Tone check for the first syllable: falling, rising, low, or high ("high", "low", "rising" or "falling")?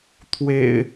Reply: low